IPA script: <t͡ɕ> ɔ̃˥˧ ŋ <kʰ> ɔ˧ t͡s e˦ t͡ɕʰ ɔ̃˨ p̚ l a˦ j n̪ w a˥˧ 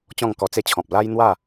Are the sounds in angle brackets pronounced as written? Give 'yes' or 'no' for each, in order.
yes, no

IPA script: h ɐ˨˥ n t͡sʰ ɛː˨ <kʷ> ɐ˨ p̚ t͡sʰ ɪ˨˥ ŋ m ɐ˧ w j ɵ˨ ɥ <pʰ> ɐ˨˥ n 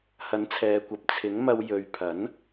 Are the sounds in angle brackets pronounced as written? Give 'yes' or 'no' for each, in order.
yes, yes

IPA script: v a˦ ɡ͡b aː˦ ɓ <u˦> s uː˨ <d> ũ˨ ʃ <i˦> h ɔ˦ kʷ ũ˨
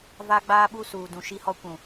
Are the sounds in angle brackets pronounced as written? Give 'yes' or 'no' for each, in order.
yes, yes, yes

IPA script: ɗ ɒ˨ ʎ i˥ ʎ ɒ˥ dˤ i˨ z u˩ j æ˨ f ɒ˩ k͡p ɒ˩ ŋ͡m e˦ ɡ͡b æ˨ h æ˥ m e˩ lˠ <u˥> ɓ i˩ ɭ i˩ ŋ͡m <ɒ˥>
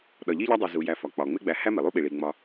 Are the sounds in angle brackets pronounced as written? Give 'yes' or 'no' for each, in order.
yes, no

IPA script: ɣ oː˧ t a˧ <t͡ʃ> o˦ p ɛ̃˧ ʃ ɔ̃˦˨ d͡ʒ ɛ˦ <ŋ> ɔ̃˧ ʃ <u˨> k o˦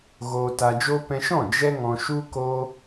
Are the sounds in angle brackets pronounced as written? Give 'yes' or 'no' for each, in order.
no, yes, no

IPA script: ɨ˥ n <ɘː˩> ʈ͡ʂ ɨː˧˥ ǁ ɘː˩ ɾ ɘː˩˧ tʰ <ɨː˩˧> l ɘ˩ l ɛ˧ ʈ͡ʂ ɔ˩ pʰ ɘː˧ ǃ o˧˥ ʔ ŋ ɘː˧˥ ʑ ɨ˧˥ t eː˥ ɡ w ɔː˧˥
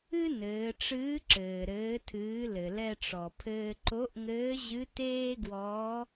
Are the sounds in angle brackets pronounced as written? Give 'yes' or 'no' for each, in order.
no, yes

